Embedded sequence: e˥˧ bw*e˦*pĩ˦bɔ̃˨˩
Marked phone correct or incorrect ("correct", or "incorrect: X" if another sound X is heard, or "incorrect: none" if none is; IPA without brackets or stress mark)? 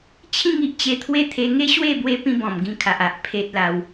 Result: correct